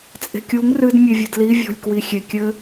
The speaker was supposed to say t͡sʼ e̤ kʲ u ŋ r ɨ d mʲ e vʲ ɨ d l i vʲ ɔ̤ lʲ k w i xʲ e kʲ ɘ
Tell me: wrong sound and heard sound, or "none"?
none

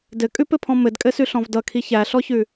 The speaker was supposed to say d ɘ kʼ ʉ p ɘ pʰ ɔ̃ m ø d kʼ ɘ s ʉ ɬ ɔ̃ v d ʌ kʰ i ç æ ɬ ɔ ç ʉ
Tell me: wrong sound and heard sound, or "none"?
ø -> ɘ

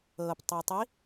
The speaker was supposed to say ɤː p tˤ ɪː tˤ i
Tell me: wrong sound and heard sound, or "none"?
none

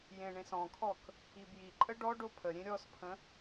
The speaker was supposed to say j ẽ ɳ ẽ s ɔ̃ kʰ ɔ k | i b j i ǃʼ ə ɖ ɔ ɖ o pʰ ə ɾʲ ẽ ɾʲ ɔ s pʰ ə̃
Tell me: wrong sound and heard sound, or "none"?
none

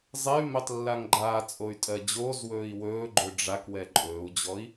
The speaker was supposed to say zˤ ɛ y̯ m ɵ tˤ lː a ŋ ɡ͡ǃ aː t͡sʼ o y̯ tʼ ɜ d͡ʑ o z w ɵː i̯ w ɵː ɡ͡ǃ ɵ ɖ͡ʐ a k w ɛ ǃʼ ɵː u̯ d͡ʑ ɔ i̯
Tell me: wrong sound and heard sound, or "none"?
none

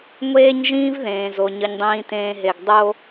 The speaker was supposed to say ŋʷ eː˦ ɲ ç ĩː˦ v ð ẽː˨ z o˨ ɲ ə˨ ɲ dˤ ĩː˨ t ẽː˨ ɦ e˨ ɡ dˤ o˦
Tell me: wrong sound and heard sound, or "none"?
ç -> ʒ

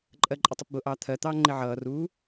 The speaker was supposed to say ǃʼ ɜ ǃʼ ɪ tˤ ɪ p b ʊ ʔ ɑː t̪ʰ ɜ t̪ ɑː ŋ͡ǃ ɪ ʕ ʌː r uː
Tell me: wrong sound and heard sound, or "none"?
none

